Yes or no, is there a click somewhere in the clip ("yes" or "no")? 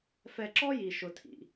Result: yes